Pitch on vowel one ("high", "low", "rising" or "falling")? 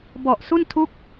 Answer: low